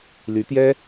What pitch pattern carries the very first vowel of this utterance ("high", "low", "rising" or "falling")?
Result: rising